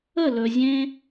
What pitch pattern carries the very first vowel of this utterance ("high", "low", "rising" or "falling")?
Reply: falling